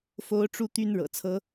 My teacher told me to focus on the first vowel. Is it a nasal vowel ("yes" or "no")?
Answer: no